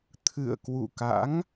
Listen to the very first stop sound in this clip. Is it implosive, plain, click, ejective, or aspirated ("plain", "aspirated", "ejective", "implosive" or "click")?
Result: aspirated